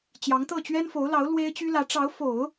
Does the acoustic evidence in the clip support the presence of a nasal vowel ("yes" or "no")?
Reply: no